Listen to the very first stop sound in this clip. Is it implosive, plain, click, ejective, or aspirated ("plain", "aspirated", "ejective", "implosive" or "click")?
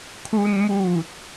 aspirated